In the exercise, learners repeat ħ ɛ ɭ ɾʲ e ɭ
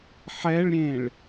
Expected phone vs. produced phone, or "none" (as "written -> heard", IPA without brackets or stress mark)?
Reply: e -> ẽ